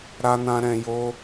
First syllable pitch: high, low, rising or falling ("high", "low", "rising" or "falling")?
high